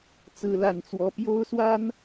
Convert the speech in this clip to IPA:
t͡s ɹ̩˦ l a˥˨ n t͡s w ɔ˦ p j o˦ ʊ̯ s w a˦ n

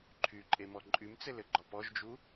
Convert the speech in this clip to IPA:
ǃʰ y ǃʼ e m ɔ ǃʼ y m t͡s ɘ l ɘ ɡ͡ǃ ɔ p ɔ ʒ d͡ʒ u

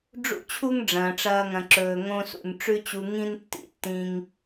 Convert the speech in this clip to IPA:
ɖ͡ʐ ṵ˦ t͡ɕʰ u˦ ŋ ɖ͡ʐ ɐ̃ː˨ ʈ͡ʂ ɐː˧ ŋ ɐ̃˨ ǁ ɵː˨ ŋ õ˧ s ṵ˨ n ʈ͡ʂ ʉ˦ t͡ɕ u˧ ŋ ĩ˦ n tː ḭ˧ tː ĩ˧ ŋ

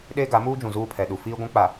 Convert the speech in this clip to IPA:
ɗ eː˦ ɡ a˨˦ m uː˦ d͡ʒ ũ˨ z uː˦ pʰ ɛ˨ ɗ u˨ f iː˦ ɡʷ ũ˦ k͡p a˨

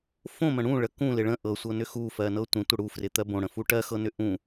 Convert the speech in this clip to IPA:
f õ m ə̃ ɽ ũ ɭ ə k ũ l ɪ ɭ ə̃ ʔ ɤ sʷ ɤ n ʏ x u f ɜ n ɤ tʷ ə̃ tʷ ə ɽ u f r ɪ t̪ ɜ b õ ɽ ə̃ f u ʈ ɜ x ɤ n ʏ ʔ ũ

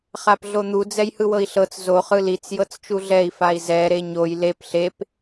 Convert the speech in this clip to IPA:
χ a p ɮ o n̪ u d͡z ɛ j h ɯ w ɤ i̯ ɬ ɤ t͡s z o χ ɯ l i t͡s j ɤ t͡s t͡ʃ u ɮ ɛ i̯ f a i̯ z ɛ ɾ e ɲ o j l e p ɬ e p

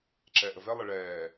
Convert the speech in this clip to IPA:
ǁ ɛː ʔ ə v ɛ lˠ ə ɭ ɛː

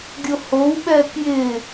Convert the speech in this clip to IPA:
ɡʲ o h o w ɓ ɛ k j ɪː

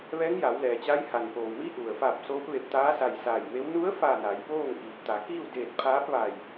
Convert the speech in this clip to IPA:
ʋ ɛː˧˥ ŋ j a˩˧ w l ɛː˩ t͡ɕ a˧˥ j h a˩ n p oː˩ w m iː˧˥ ʔ u˩ ə̯ f a˧˩ p̚ s oː˧˥ p̚ ʋ e˧˩ p̚ t̪ aː˧˥ s a˧˩ j s aː˧˩ j m e˧˥ w n u˧˥ ə̯ f aː˧˩ n a˩˧ j p oː˥˨ ŋ ʔ iː˩ t̪ a˩˧ k iː˥˨ w d eː˧˩ t̚ pʰ aː˧˥ p̚ ʋ a˧˩ j

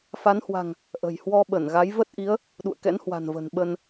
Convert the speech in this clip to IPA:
f a˨˦ n h w a̤˨˩ ŋ | ʔ ə̤˨˩ j h w ɔ˧ ɓ ə˧˩ n ɣ a˨˦ j v ə˦˥ t̚ ʔ i˨˦ ə̯ | ɗ ṵ˧˨ ə̯ k ɛ̰˧˥ n h w a̤˨˩ n v ə̤˨˩ n ɓ ə˧ n

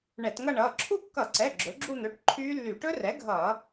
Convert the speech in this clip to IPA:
ɳ ɛ˧˩˧ t ŋ ʌ˥˧ ɳ ʌː˩˧˩ ǁʰ u˥˧ kː ʌ˧˩˧ ǀ ɛ˩˧˩ ɡ͡ǁ ɵ˩˥ ɡ͡ǁ u˥˧ n̪ ɵ˩˧˩ ʈ ǃʰ yː˦˥ lː y˧˩˧ ʈ ɵ˦˥ r ɛ˩˥ ɡʱ ʌː˧˩˧

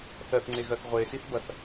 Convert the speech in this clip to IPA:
θ ɜ θ ŋ͡ǀ e ɣ ɜ θ ʁʷ e s i θ b ɐ θ

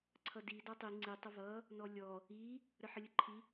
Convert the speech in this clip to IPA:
ǀʰ ʌ d i d ɔ tˤ i ŋ͡ǀ i tˤ ə v ʌ | n ɔ lʲ ɔ | i | ɾ ə ħ ə lʲ ə ǃʰ i

